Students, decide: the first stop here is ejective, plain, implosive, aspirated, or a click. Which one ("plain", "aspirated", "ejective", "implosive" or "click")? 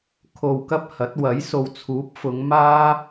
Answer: aspirated